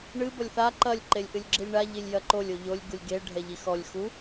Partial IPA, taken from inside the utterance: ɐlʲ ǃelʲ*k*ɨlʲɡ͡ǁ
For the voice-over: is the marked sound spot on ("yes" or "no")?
no